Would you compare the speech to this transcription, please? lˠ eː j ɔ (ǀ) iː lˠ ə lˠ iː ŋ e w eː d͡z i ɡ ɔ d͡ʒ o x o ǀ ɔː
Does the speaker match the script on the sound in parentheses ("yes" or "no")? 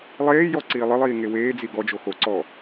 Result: yes